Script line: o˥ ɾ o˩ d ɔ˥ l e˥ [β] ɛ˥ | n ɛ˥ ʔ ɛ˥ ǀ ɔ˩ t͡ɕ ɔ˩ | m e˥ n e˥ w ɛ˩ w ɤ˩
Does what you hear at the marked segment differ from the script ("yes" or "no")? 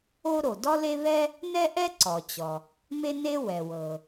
no